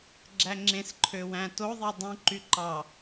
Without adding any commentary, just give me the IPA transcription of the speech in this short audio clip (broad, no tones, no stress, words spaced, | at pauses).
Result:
ɡ͡ǁæŋ͡ǁẽsǃʰø wæ̃toðˤi dˤũǃy ǃɑ